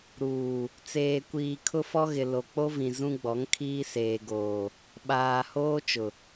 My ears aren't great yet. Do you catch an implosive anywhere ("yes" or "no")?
yes